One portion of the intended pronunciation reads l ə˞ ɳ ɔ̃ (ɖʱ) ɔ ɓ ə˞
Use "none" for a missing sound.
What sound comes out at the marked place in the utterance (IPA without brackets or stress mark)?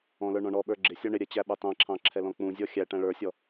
ɳ